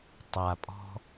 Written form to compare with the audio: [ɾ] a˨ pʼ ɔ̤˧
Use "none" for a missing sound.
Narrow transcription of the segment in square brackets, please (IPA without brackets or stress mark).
tˤ